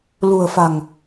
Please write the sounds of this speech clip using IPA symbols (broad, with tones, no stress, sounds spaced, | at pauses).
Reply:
l ṳ˨˩ ə̯ f a̤˨˩ ŋ